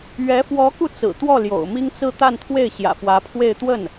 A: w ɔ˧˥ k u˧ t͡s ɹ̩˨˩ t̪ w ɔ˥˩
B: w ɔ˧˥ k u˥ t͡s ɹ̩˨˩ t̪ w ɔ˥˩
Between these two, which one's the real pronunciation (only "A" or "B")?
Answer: A